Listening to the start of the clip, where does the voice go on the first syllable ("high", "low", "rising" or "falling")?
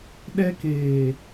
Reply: high